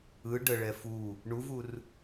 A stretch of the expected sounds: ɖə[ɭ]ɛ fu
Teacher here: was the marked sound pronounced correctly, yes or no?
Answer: yes